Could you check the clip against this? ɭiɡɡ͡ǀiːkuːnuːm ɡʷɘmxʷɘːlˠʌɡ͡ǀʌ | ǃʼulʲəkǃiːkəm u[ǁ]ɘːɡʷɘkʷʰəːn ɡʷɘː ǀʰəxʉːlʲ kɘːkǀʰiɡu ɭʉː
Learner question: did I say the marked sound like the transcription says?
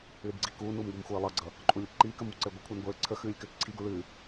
no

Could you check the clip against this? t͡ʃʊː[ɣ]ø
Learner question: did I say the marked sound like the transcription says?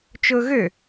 yes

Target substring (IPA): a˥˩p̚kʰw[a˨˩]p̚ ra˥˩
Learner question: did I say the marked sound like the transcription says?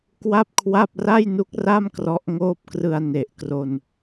no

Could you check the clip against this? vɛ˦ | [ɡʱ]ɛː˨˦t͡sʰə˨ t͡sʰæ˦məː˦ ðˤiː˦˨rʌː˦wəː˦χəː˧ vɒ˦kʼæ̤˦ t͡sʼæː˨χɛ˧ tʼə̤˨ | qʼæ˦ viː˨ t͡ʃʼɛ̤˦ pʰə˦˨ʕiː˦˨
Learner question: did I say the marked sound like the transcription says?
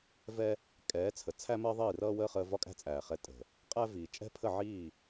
no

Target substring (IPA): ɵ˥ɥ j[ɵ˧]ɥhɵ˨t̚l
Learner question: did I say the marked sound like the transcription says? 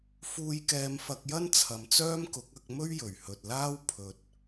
no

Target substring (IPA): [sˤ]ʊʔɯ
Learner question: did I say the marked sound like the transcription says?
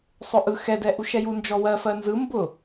yes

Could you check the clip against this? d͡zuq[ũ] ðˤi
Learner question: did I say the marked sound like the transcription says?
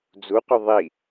no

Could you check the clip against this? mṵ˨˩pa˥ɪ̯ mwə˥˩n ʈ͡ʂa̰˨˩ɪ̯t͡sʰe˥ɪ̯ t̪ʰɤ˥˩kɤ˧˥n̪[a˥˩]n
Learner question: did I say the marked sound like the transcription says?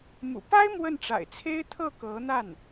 yes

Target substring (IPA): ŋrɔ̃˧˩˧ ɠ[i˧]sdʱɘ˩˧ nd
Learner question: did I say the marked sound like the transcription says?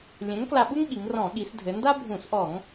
no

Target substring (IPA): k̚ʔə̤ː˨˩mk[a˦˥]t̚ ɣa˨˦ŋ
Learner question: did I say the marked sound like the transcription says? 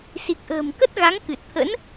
no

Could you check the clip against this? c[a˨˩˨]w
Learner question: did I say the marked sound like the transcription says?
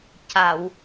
yes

